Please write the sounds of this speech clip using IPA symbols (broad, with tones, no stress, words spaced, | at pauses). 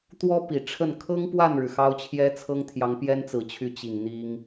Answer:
t̪wɔ˥ pi˨˩ʈ͡ʂʰə˥˩n kʰɤ˥ŋpwa˥˩nɻɻ̩˩ xɑ˥ʊ̯t͡ɕʰjɛ˥t͡sʰɤ˥ŋt̪ʰjɑ˧˥ŋ pjɛ˥nt͡sɹ̩˨˩t͡ɕʰy˧˥ t͡ɕi˨˩ŋn̪i˥ŋ